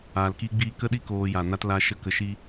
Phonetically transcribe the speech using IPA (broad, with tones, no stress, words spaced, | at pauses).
aː˨l kiː˦ɡ͡biː˦ kə˦ɗi˦ koː˧ja˨ na˦tla˦ʃə˦ kə˧ʃi˦